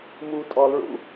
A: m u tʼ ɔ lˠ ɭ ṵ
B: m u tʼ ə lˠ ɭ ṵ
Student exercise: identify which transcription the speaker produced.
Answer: A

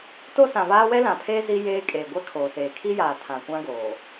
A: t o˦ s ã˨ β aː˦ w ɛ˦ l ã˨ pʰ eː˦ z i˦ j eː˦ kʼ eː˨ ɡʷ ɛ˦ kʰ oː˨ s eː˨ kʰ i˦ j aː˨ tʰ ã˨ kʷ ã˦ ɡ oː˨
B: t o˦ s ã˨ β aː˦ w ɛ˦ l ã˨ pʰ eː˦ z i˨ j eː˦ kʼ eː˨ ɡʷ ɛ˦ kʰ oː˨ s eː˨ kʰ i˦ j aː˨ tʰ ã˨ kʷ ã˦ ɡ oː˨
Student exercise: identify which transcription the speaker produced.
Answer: A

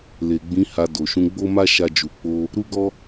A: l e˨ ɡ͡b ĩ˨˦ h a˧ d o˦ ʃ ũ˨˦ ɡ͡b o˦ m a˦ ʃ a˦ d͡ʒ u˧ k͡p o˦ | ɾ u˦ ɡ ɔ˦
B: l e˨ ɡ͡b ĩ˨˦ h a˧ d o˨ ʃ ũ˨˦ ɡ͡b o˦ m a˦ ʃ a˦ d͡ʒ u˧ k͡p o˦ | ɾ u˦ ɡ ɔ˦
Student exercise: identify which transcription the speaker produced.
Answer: B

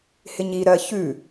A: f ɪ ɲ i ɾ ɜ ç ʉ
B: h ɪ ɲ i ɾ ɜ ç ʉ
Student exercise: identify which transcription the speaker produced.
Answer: B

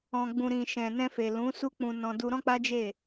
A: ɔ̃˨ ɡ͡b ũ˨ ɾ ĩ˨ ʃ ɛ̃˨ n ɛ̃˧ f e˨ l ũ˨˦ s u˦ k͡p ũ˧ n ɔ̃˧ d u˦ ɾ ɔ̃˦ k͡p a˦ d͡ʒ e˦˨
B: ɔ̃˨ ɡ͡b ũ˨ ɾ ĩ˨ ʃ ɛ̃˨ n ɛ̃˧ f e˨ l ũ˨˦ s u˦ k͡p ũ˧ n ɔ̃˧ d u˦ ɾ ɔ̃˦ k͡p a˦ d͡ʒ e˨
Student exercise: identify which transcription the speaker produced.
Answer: A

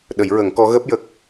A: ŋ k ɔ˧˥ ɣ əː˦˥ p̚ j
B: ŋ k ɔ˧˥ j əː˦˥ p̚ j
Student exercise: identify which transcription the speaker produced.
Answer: A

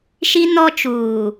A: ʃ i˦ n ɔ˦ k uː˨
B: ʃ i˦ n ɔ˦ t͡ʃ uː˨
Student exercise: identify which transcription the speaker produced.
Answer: B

